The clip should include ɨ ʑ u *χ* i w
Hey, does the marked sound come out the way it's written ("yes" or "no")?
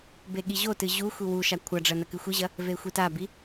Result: no